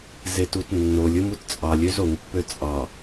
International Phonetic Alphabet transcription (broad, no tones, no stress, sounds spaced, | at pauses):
z e t u t nː o lʲ ɯ m u t t͡sʼ ɑ lʲ ø z o ŋ pː ø t͡sʼ ɑ